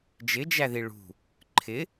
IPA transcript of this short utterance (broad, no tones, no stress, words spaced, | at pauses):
d͡ʒɪd͡ʒæði ɭṳ | ǃʰɪ